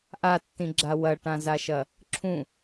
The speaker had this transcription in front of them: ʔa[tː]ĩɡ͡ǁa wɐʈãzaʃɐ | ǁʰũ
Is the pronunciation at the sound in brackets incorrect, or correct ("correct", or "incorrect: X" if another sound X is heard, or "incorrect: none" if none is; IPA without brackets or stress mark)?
correct